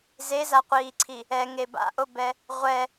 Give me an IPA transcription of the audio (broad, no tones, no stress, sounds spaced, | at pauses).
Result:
z e z a qʷ iː ǀʰ i | ɛ ŋ e b a̰ ʔ o b ɛ | ʁʷ ɛ